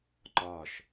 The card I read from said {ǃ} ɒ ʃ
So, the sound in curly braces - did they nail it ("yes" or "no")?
yes